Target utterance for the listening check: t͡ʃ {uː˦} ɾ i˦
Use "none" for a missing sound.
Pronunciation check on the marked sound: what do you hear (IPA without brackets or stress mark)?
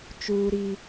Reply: uː˦